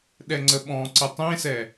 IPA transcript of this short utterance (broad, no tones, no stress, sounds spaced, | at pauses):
ɗ ɛ ŋ͡ǀ ə ɓ ɔ̃ ǀ ɘ tˤ ẽ s ɛ